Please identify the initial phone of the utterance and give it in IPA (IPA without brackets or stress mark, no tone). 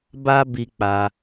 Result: b